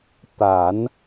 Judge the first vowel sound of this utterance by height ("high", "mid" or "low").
low